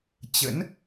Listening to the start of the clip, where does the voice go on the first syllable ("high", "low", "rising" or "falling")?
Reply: rising